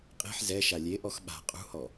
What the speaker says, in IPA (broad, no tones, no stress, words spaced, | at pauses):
qʼe̤ħ zɛ ʃalʲe ʔɔxɓa̤ qʼṳhɔ